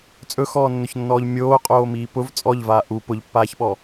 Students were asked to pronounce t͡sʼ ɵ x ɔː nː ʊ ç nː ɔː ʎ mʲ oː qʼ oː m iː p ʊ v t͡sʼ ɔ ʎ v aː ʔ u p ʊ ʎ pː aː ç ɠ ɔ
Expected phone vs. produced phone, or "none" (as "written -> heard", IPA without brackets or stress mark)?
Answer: ɠ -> ɓ